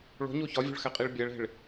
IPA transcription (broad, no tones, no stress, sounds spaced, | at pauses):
ɭ o̤ ɲ o ç ɒ vʲ o̤ ɭ x æ qʼ i ɭ bʲ æ ɭ e̤ ɭ